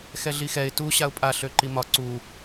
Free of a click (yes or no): no